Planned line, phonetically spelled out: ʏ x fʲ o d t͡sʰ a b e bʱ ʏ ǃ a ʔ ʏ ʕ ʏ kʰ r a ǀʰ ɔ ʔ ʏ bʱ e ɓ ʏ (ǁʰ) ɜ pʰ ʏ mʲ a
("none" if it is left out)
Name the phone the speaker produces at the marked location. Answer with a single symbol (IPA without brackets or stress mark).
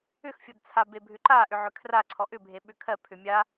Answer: kʰ